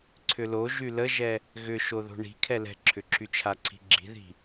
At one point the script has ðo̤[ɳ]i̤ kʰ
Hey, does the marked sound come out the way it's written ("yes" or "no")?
yes